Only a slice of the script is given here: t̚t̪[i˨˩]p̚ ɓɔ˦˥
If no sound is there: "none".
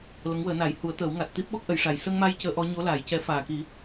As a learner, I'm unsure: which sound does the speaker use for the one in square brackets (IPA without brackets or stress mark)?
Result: i˦˥